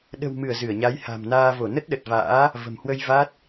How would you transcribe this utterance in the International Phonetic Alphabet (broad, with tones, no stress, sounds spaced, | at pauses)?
ɗ ə̤˨˩ w m ɨ˧˩ ə̯ z ɨ˧˩ ə̯ ɲ a˨˦ j h a̤˨˩ m n aː˧ v o˧˩ n ə˦˥ t̚ ɗ ə˨˩ t̚ v a̰ː˧˥ | v ə̤˨˩ m h w ə˧ j v a˦˥ t̚